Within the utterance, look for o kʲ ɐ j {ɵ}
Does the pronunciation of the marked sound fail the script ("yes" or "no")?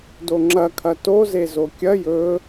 no